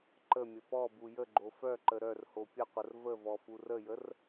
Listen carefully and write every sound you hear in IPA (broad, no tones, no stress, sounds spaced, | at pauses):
ǃ ə mʲ ə p ɔ b u j ə ɡ͡ǃ o f œ ǃ ə ɾ œ r h o pʲ ə qʷ ə r v ə v ɔ f u r ə j ə r